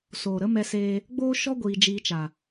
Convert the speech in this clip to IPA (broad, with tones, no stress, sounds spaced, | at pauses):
s oː˨ ɾ ə˦ m ɛ˧ s eː˧ | ɡ͡b oː˦ ʃ ɔ˦ ɡʷ iː˧ d͡ʒ iː˧ t͡ʃ a˨